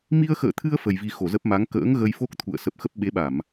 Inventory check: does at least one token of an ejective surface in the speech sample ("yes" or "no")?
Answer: no